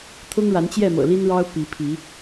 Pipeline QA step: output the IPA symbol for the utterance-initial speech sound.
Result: t̪ʰ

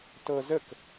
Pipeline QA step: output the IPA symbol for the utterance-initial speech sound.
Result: t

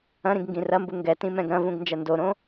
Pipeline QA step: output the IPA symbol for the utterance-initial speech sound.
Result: ɐ̃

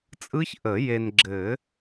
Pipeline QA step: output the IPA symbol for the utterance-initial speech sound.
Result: t͡sʼ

